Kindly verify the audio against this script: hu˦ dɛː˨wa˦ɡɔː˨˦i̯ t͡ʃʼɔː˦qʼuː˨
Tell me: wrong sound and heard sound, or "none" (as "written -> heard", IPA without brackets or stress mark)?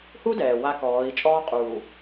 ɡ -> k